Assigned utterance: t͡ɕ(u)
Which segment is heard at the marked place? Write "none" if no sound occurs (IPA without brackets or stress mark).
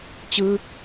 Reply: ɯ